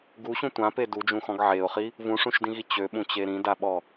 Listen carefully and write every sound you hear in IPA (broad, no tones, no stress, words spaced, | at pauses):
ɡuɕũ tʷãpe dud͡ʒũxɔ̃ɡ ʕeʊ̯χi | vũʂũʃdĩɣi t͡ɕøɓũt͡ɕe ɾĩdaɓɔ